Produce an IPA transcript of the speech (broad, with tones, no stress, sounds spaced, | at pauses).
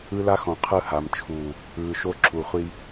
ɯ˦ l a˦ x ɔ̃˨ qʰ ɯ˦ h a˨ m t͡ʃʰ uː˨ | ɯː˨ ʃ o˦ ǁʰ u˨ χʷ i˦